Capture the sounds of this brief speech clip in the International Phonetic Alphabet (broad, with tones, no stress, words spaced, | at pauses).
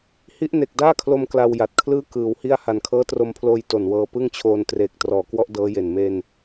hi˦˥ʔne˨˩k̚daː˥˩kʰlo˧m kla˧wja˨˩t̚kʰlɯː˥˩ kɯː˨˩whi˥˩a̯ ha˨˩nkʰɤː˦˥tro˧mpʰloː˧j to˨˩nwɤː˧ pɯ˥˩ŋt͡ɕʰoː˧n treː˨˩k̚trɔː˨˩kwɔ˦˥ʔ dɤː˦˥je˨˩n me˧n